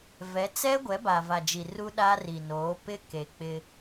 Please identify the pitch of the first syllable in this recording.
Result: rising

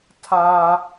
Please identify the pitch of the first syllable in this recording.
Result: high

